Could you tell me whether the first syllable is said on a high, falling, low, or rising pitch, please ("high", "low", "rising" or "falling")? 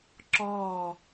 falling